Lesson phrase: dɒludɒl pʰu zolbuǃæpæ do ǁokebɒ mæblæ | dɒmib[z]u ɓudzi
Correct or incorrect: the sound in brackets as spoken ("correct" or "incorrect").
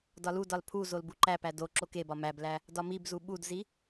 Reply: correct